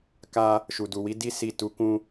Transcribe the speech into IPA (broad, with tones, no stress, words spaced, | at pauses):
ka˦ | ʃu˨du˨wi˨˦ di˦ si˦˨ tu˧kũ˦